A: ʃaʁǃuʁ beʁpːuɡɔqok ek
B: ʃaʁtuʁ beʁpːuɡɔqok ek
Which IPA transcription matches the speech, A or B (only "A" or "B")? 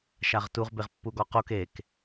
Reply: B